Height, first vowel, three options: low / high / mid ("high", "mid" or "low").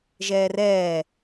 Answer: mid